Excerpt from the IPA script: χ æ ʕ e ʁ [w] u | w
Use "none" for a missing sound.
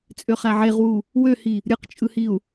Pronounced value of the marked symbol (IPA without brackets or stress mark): w